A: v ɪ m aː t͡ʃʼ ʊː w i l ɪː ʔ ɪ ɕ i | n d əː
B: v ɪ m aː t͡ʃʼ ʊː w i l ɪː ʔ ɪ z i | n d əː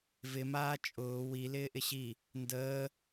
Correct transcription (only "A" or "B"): A